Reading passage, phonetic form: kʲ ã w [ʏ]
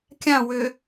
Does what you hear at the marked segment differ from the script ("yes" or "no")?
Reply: no